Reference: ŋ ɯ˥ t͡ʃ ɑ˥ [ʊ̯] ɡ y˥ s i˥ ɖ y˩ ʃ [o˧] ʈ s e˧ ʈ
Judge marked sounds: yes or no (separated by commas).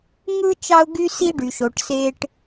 yes, no